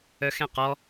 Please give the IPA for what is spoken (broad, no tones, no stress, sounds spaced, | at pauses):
œ x ɛ̃ q ɔ